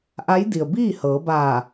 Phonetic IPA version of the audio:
ʔa˧˥jdi˩ə̯ biː˥˨ hɤː˩˧baː˧˩

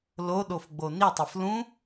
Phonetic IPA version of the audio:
loɗofɡ͡bo nitˤef lũ

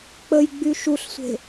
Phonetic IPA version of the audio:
k͡pəjɡ͡by ʃuɬsʷe̤

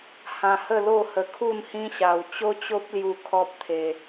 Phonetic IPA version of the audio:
hã˧ hə˥˧lo˥˧hə˧ kʰu˥˧nhĩ˦ɕa˧w t͡ɕo˦t͡ɕo˦p̚lju˧ kʰɔ˦p̚t̪ʰe˧

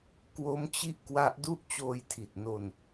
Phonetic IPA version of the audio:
kwo˦˥mt͡ɕi˦˥ʔ kwa˦˥ʔdu˥˩ʔ t͡ɕoː˧jtʰi˨˩t̚no˧n

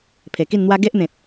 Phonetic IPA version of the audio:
pʰe˨˩ki˥˧nn̪wa˦ ɡe˦ʔn̪ẽ˨t̚

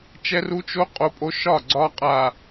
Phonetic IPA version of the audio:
t͡ʃɛ˦ru˦ t͡ʃo˦ qʼo˦pʼo˦ ʃɒ˦˨ ɡ͡ǀɒ˦ qʼa˨

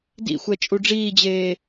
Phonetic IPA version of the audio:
dḭ xʷɛt͡ʃʼuɖ͡ʐiːd͡ʑeː

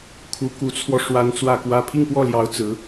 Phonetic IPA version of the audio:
kʰu˧˥ku˧˥t͡sʰwɔ˧ ʂwa˥n t͡swä˥˧kwä˥˧ pʰi˥˧ŋpwɔ˥˩ljɑ˧˥ʊ̯ t͡sɹ̩˧˥

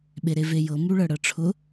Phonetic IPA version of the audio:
ɓeɾevejɤ muɭɤɽɤʈ͡ʂʰʊ

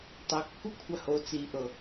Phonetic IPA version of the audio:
tˤe kːukʷʰaho t͡si ʔɤ

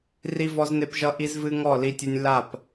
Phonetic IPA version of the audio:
ri˦vɔ˦zne˦pʒʌ˦ ʔi˦zvɨ˦ŋɔ˦˨ li˦tʲɨ˦nʲ la˦˨p

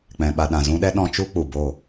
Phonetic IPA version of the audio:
k͡pɛ̃˧ɓa˧ ɗã˨zũ˧ɗɛ˦ ɗɔ̃˧t͡ʃu˦ k͡pu˨bo˦˨

